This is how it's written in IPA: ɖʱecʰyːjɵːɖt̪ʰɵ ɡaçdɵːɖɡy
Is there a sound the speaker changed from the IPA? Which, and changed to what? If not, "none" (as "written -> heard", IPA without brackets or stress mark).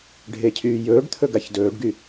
none